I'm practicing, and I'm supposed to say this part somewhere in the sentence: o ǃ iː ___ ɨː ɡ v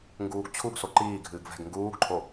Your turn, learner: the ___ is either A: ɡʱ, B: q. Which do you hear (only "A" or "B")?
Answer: A